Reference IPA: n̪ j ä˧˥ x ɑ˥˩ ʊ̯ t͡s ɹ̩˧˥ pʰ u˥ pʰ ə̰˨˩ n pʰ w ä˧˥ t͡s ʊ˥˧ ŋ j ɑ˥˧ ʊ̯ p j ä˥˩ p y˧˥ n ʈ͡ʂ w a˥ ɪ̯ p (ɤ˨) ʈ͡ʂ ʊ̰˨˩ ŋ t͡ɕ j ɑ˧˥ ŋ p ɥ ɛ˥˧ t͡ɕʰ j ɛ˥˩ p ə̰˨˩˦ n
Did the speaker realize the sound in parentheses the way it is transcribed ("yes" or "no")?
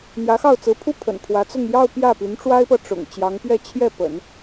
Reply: yes